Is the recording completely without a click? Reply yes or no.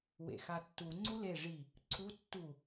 no